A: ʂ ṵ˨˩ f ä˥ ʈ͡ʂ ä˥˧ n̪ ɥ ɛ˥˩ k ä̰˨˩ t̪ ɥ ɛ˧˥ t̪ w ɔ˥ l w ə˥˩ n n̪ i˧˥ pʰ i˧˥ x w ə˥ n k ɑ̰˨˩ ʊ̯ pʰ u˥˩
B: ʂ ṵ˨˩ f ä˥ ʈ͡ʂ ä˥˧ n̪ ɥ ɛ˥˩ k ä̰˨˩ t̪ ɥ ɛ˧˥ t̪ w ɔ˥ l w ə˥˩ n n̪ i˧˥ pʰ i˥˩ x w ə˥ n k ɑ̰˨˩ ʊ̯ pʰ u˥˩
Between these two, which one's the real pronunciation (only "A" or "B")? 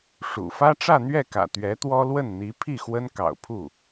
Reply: B